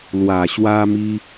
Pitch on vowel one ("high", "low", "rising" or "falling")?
low